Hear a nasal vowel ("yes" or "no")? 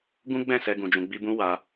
yes